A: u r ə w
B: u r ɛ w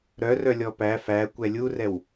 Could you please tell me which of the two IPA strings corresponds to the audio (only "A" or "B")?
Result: B